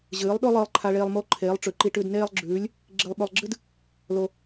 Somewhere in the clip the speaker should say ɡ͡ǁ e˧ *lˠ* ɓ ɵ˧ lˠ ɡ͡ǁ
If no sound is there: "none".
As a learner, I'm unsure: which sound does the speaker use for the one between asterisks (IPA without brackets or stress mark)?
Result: lˠ